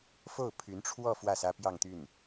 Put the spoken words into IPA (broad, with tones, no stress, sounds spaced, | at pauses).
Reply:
f o˥˩ ʊ̯ pʰ y˧˥ n ʈ͡ʂʰ w ɔ˥˧ f w ä˥˩ s ä˥ p j ɑ˥˧ ŋ t̪ y˥˩ n